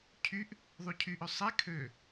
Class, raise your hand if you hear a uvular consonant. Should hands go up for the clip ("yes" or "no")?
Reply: no